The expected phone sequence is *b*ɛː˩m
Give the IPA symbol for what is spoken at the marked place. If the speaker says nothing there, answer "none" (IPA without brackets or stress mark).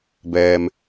b